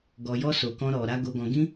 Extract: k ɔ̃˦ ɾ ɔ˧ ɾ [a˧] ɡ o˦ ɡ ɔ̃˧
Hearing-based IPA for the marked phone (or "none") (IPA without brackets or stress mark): a˦